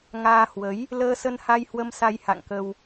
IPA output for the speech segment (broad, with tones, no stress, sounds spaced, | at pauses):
ŋ aː˧ h w ə˨˦ j | l əː˧ s ə˧ n h a˧ j h w ə˧ m s a˧ j h a̰˧˨ ŋ k ə˧ w